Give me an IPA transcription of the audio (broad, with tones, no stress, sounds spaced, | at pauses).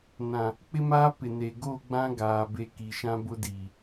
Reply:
n ã˨ | k͡p ɪ˦ m aː˦ p ɪ˨ n e˨ ɡ o˦˨ ɡ͡b ã˦ ɡ aː˨ b e˦ k i˨ ʃ ã˦ b ʊ˦ d iː˨